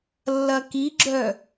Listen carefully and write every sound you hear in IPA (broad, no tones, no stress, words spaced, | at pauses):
lːɐkiɡ͡ǁœ